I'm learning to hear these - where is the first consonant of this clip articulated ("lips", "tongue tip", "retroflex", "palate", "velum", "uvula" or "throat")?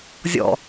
tongue tip